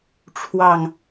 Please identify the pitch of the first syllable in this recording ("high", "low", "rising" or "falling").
low